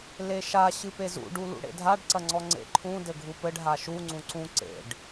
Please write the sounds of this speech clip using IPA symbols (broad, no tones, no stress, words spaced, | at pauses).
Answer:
leʃa ɕɨpezṵ ɖulṵɽḛdʱaɖ ǀɐŋ͡ǀɔŋ͡ǀḛ ǃʰũ dɘɡʱupɘɖ ɦaʃu ŋ͡ǀũǀũ ǀḛɖ